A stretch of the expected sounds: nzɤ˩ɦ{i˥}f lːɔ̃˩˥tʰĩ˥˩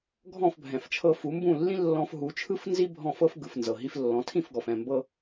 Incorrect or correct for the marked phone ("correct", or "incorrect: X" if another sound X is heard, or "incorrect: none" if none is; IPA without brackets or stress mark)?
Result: incorrect: i˧